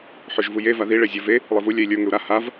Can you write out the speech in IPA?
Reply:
ħ ʏ ʒ v u j e v a ð i ɭ e zʲ ə˞ v e | lˠ i v u lʲ ɛ i̯ lʲ ə˞ ŋ ʏ u̯ ɾ a h a v

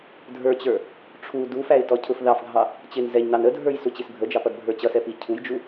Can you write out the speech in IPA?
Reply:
dʱ ə˞ t͡ɕ ə˞ | ʈ͡ʂʰ u d u f æ ɪ̯ t ɔ cʰ ʊ f ð ɑ f ɡʱ ɑ | t͡ɕ ɪ n z ɛ ɲ n ɑ n ə dʱ ə˞ j s u t͡ɕ i s bʱ ə d͡ʒ ɑ p ʌ d bʱ ə˞ t͡ɕ ʌ s ɛ p i cʰ u j d͡ʒ u

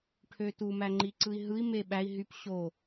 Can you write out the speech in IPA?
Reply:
ʈʰ ø t u m æ ŋ͡ǃ i ǀ ɯ i̯ ɦ ɯ i̯ m e ɓ æ i̯ ɦ y p ɕ o

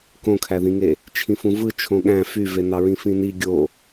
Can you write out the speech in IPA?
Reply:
k õ kʰ æ ð ĩ ŋ e | t͡ʃʰ ĩ f ũ v ɯ t͡ʃʰ õ ɠ æ̃ f y v e n ɑ ɹ ĩ f ĩ n i ɡʲ o

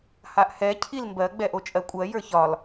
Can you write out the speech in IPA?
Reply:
h a ʔ h ɛ cʰ i l m b ɜ ɡ͡b ɛ ʔ o t͡ʃʼ ɜ kʷʼ ɜ j ə˞ ç ɒ l

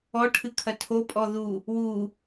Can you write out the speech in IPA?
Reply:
ɔ ʈʰ ɨ kʰ ɐ tʰ o pʼ ɔ ð u | w u

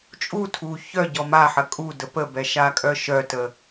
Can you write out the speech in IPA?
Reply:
t͡ʃʼ u tʰ u ç œ ɟ ɔ m a ħ ɐ kʼ u d ə p ə b ɛ ʃ a kʼ œ ʃ œ t ə

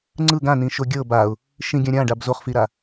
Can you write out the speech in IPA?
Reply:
ŋ͡ǀ ɯ ɡ ã n ĩ ʃ o ɡʲ ɤ b a ʊ̯ | ʃ ĩ ɡʲ ã ɾʲ ã ɖ a b z o χ f i ɾ a

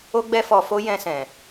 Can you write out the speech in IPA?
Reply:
o˦ ɡ͡b ɛ˦ f ɔ˧ f o˦ j ɛ̃˧ s ɛ̃˨

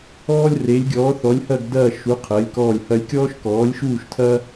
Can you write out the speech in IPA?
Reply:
ɔː˥ lʲ r e˧˥ lʲ ɡʲ ɔː˧˥ θ ɔ˧˥ lʲ h ɐ˥˧ ɡ d ɐː˥˧ ʃ u˧˥ qʰ ɜ˧˥ lʲ k ɔː˥˧ lʲ h ɐ˥ lʲ kʲ ɔː˥ ʃ k ɔː˧˥ lʲ ʃ uː˥˧ ʃ tʰ ɐː˥

